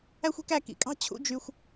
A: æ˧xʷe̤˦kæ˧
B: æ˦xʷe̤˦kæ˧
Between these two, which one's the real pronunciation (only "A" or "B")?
B